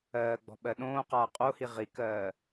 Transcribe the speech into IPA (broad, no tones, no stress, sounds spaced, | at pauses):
ɜː ɡ͡b ɔ̤ ɓ ɜ ɗ õː q aː qʼ o h i ʁ i k ɜː